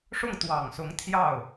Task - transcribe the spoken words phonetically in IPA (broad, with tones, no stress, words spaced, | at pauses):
ʂʊ˥˩ŋ t̪wɑ˨˩ŋsʊ˧˥ŋ t̪ʰjɑ˥˩ʊ̯